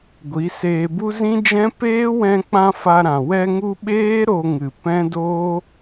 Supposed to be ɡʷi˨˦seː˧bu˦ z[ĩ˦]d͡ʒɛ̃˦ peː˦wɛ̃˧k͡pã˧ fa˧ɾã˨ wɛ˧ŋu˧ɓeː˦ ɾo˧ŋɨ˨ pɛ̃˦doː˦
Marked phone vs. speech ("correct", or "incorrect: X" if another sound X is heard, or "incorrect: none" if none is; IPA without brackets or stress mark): correct